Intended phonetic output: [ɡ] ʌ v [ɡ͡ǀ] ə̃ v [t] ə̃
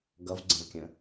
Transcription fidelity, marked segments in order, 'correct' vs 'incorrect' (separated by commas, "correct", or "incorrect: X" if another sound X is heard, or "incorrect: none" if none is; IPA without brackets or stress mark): correct, correct, incorrect: kʲ